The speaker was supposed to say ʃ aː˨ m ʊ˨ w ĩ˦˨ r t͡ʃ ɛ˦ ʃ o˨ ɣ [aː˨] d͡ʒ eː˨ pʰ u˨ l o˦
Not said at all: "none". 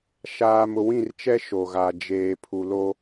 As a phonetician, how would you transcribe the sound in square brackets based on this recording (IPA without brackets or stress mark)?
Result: a˨